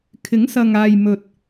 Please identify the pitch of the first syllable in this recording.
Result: rising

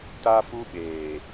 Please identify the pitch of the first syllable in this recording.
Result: high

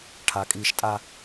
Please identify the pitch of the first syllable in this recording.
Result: low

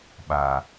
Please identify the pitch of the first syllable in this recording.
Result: low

